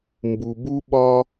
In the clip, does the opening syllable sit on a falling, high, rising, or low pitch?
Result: low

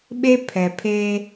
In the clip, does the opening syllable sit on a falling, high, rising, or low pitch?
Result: high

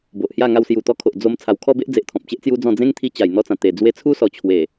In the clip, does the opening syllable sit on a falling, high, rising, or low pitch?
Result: low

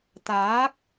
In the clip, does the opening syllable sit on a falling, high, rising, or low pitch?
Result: rising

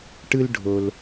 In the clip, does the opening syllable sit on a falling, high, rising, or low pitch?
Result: high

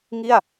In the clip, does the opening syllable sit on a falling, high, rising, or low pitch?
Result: falling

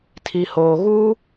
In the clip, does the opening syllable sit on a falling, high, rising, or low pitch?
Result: low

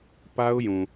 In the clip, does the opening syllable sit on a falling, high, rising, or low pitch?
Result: high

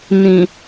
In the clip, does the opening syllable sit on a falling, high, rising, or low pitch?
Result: low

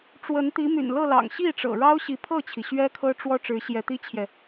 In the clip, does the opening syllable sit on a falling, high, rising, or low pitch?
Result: rising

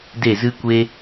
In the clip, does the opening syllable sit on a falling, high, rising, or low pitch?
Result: falling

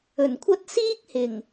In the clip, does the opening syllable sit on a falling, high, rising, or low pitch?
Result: low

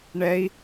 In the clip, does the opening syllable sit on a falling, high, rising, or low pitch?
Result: high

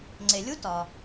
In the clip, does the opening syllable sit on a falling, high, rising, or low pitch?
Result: low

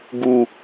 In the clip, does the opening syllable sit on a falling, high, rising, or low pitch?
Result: high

